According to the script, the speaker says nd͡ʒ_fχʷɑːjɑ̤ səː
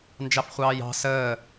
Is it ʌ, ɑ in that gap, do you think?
ɑ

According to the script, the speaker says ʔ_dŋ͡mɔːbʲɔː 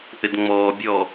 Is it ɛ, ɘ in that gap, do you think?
ɘ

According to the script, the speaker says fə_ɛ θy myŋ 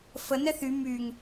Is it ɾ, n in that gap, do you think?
n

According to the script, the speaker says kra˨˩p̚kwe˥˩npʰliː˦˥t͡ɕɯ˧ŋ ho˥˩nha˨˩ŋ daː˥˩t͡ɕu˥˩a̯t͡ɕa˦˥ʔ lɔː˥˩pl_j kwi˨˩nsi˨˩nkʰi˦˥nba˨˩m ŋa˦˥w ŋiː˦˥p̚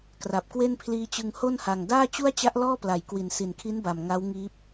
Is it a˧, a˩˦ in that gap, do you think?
a˩˦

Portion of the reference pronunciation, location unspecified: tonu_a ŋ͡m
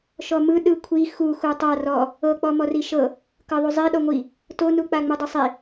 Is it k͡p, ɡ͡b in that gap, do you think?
k͡p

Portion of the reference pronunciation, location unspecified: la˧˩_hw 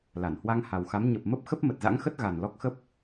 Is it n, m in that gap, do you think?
n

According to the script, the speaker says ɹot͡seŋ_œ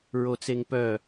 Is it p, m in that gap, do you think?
p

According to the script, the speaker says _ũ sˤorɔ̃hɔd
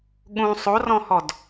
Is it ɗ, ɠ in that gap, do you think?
ɠ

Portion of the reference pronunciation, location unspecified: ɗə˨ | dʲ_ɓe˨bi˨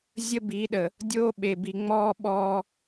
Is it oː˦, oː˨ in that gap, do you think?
oː˦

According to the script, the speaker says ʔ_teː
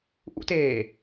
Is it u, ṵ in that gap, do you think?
ṵ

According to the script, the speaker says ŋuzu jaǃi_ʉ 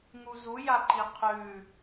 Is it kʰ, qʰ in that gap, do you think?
qʰ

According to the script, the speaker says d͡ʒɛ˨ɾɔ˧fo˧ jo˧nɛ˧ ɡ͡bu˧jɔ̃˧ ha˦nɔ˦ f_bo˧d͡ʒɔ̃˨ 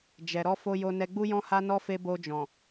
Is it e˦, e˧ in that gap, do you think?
e˧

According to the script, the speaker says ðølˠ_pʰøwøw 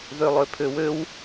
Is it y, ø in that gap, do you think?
ø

